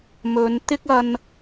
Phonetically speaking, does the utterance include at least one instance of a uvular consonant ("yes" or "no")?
no